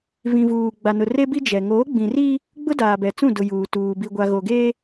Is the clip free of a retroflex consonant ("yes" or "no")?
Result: yes